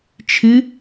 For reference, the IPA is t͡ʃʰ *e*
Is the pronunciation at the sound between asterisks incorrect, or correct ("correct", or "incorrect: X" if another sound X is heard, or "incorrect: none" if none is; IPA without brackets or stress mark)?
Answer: incorrect: ɨ